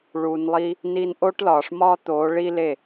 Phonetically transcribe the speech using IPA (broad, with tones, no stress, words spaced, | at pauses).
ɭu˨nlˠi˧ | niː˧nʔo˦ʈlɒː˨ʂ mɒː˦t̪oː˨˦ ɭi˦le˦˨